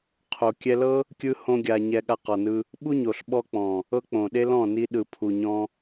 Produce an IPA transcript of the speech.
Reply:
qʰo˨kʲɛ˧lɤ˦ | kʲɯ˦hõ˦ɡʲa˧ ɲɛ˧ɠa˧qɔ˨nɯ˧ | ɓu˦ɲo˨ɬɓɔ˧k͡pɔ̃˨ | ɤ˦k͡põ˨ ɗe˦lɔ̃˦˨ ni˧ɗɯ˨ pʰu˨ ɲɔ̃˧

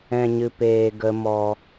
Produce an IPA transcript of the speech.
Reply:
ɛ̃˧ɲɨ˧peː˧ ɡə˦ mɔ˧

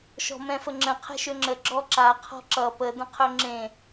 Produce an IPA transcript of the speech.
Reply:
ʃɔ̤mɛ̃fəŋ͡ǁə̃ qʰɛ̤ʃøŋ͡ǁə ɡ͡ǁɔǁa qʰɔ̤ǁʌ pə də̃qʰøŋ͡ǁẽ

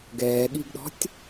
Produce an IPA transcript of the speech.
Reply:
ɡɛːɠiɡɗɔ̤tʲ

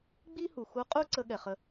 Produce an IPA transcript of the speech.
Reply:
ɡ͡bi˥hu˩xu˧˥qʼu˥ ǀə˥ɠɛ˩χə˧

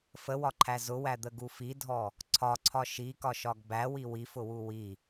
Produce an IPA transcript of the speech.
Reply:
fəwɒǃʰæ zʊwæd̪əɡu fidʱɔ | ǀʰɒǀʰɒ ʃikɒʃɒɡ bæwi wifʊwu wi

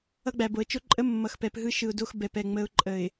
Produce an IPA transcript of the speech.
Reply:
ʌ˦ɡ͡bæ˨bo˨ə̯ t͡ʃo˦ǃʼə˦ mːʌ˨xpɛ˨p ɦɯ˦ʃɯ˨ʊ̯do˦x bɛ˨pɛ˨ ŋ͡mə˨˦ʊ̯ǃʼə˨ɪ̯

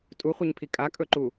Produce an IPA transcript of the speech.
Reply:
tʼuχʷeɲpʰi kʼakʼɵǃu

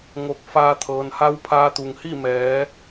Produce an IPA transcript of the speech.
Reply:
ŋo˧˩k̚faː˧t̪ʰɤː˩nha˧˥w pʰaː˧t̪u˩ŋhi˥˨ mɛː˩˧

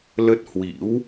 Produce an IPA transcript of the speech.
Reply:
lə˦˥t̚hwḭ˧˥w

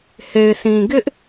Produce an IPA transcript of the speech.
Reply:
he˨ɪ̯sʰĩ˨ɡɪ˦ʔ

